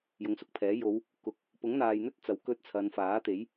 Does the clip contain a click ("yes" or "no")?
no